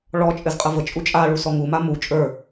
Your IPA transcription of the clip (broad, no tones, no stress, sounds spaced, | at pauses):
ɭ ɔ t͡ʃʼ ɘ z qʼ ə v ə t͡ʃʼ u t͡ʃʼ a ɭ u s ɔ ŋ u m a m u t͡ʃʼ ə˞